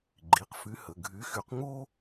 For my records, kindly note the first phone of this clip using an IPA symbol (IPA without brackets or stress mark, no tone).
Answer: ɡ͡ǃ